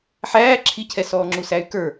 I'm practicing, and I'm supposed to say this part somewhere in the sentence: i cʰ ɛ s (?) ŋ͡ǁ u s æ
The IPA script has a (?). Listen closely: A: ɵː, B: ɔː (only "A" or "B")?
B